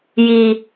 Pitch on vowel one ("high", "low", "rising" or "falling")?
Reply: low